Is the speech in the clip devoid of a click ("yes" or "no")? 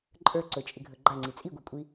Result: no